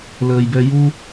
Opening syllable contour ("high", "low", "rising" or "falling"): low